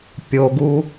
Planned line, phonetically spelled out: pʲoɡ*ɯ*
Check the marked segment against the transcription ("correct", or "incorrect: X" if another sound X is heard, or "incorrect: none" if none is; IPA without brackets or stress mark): incorrect: u